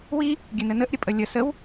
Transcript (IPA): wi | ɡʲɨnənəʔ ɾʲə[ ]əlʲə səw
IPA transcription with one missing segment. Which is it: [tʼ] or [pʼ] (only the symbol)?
pʼ